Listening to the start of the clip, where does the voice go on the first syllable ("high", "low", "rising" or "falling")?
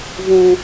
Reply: low